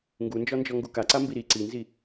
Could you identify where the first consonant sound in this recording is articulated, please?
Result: velar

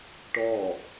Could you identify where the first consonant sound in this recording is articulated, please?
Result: retroflex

